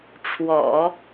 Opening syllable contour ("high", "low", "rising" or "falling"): low